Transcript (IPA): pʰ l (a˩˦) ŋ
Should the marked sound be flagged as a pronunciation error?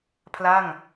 yes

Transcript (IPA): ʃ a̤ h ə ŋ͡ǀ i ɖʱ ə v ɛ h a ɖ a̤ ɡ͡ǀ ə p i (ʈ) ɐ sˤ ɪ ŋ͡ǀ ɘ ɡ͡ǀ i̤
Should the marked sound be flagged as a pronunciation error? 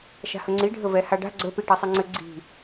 no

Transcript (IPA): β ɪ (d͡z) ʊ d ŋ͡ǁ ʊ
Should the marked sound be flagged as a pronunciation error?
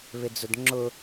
no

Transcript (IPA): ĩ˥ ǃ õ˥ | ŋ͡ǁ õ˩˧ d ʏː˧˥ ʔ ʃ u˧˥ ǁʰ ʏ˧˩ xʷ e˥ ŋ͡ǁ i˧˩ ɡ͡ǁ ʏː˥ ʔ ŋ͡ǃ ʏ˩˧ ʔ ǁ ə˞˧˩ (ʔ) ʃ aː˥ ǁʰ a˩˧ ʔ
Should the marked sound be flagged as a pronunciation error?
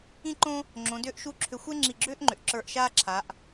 no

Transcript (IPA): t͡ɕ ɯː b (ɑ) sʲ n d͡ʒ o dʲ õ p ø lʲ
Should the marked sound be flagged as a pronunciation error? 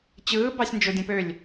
no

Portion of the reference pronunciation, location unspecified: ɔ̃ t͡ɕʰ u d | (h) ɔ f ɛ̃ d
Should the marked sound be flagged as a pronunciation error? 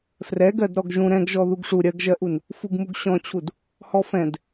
no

